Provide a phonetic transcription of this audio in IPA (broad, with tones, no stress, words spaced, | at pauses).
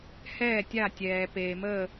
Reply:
hɛː˧˩tʲa˧˩tʲɛː˩ peː˩məː˧˩